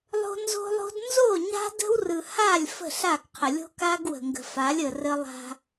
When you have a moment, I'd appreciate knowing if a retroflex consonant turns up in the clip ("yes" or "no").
no